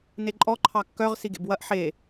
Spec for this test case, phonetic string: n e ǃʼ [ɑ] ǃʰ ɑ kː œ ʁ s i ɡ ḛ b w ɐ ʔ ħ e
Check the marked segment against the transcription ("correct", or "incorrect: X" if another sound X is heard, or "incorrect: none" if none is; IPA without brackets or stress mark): incorrect: ɔ